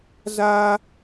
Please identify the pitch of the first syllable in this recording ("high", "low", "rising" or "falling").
high